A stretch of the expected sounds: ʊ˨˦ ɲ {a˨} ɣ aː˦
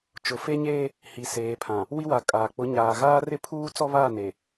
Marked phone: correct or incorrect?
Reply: incorrect